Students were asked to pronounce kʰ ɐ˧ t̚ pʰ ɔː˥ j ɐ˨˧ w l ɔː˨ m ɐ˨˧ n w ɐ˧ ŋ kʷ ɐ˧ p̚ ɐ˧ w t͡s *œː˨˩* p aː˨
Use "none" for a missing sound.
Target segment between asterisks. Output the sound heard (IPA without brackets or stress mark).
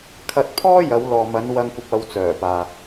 œː˨˩